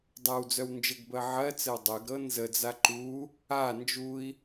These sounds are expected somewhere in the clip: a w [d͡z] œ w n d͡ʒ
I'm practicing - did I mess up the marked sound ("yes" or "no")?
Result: no